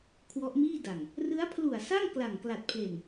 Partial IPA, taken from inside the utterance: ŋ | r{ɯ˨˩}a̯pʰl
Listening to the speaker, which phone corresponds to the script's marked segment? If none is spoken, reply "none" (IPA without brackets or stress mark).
ɯ˦˥